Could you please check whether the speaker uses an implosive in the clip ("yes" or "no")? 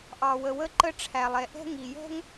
no